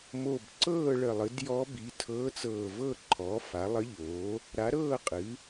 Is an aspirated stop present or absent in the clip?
present